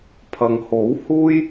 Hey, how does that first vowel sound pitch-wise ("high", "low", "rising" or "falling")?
low